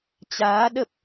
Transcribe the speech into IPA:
t͡ɕ aː˨˦ ɗ ə˦˥ p̚

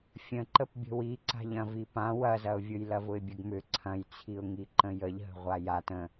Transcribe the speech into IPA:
fʲ ə̃ ǃ ə p bʲ ə̤ w i ǀ a̤ ʎ ɐ̃ v i p ã w ɐ z ɐ ʊ̯ vʲ ʊ j l ɐ v ʊ ɪ̯ bʲ ə ɡ m ʏ ǀʰ ɐ̃ j t͡sʰ i ʊ̯ ŋ i ǃ ə̃ j ə ʎ ɦ ə̤ ʁʷ a j a t ə̃

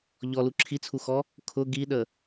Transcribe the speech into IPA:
ʎ ɔ l u ǁʰ i t͡sʰ u x ɔ | kʰ ʊ ɡ i ɗ ə

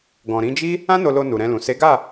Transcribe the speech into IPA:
ɡ ɔ̃˨ ɾ ĩ˨˦ d͡ʒ i˦ | ã˦ n o˧ l o˧ n u˨ ɾ ɛ̃˧ l ũ˨ s e˨˦ ɡ a˦˨

